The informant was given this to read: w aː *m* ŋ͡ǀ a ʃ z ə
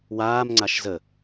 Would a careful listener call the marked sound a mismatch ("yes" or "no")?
no